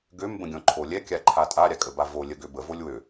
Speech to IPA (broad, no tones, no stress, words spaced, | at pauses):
ɡøm bə̃ɡʲɔ̃ǃʰolʲɛ kʲaǃʰatʼa ɾʲakʼəbavo lʲəɡ øbə volʲwø